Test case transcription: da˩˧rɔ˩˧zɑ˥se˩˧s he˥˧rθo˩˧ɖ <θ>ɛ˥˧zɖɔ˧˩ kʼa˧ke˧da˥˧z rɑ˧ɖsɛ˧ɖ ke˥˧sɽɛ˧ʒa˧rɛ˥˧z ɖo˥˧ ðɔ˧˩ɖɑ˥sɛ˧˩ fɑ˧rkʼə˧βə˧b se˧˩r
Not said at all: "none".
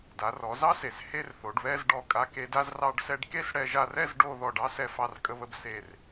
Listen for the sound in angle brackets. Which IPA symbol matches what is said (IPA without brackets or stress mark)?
β